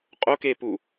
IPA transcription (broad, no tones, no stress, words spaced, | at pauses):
qʼokepu